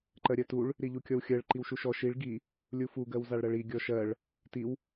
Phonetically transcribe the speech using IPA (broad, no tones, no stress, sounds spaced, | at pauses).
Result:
ǃ ɜ ɾʲ ɜ t u ɭ | ɾ i ʎ u kʲ ɔ w xʲ ɜ ɭ ǃ i w ʃ u ʃ ɔ ʃ i ɭ ɡ i | lʲ u f u ɡ ɜ w z a ɭ ɾ ɜ ɭ i ɡʲ ɔ ʃ ɜ ɭ | t i w